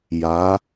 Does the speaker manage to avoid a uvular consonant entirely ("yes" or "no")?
yes